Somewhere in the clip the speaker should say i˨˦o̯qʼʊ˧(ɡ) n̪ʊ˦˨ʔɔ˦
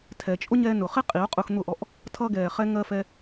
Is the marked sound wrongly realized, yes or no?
yes